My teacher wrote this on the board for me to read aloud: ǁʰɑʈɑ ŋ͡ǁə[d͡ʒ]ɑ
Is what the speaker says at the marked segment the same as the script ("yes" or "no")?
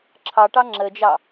yes